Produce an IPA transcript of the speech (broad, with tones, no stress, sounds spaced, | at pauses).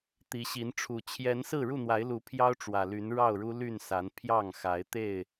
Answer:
t̪ i˨˦ ɕ i˨˦ n ʈ͡ʂʰ u˨˩ t͡ɕʰ j ɛ˨˦ n s ɹ̩˥˨ ɻ u˥˨ n̪ w a˨˦ ɪ̯ l u˨˦ pʰ j ɑ˦ ʊ̯ ʈ͡ʂ w ä˨˩ l y˨˦ n ɻ ɑ˥˨ ʊ̯ ɻ u˦ l y˥˨ n s a˨˦ n pʰ j ɑ˥˨ ŋ x a˨˦ ɪ̯ t̪ e˥˨ ɪ̯